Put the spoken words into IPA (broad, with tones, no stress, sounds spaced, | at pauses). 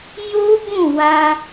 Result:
j o˦ ɡ ũ˦˨ w ã˧